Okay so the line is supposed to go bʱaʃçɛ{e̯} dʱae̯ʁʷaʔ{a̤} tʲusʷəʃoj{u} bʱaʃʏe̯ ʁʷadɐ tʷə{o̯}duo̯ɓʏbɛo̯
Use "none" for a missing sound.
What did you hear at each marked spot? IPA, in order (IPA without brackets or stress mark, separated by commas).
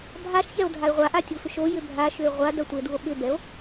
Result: o̯, a, ʏ, e̯